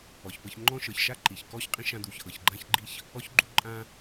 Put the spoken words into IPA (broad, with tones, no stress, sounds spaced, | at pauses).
ɔ˨ ç p ɤ˧ ç ŋ͡ǃ ɔ̃˦ ʃ ɤ˨ ç ʃ a˦ ǃ i˨ ç k ɔ˦ ç qʼ ĩ˦ ʃ ã˧ d̪ u˨ ç ʔ ɤ˨ ç ɡ͡ǃ ã˦ ç ɡ͡ǃ i˦ ç | ɔ˧ ç ɡ͡ǃ u˧ ǃʼ ã˧